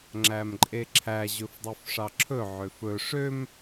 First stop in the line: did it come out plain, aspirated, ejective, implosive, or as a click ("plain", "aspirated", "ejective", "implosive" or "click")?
click